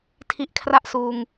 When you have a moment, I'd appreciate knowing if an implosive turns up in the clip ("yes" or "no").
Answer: no